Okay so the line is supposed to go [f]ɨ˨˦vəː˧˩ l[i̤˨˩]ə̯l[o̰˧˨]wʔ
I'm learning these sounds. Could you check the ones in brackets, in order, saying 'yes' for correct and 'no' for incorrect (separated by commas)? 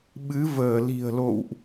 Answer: no, yes, yes